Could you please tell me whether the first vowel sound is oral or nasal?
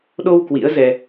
oral